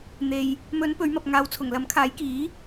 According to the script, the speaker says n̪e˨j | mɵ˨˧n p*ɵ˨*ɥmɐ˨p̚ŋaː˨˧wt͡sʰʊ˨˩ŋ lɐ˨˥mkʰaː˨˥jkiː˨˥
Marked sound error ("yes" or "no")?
yes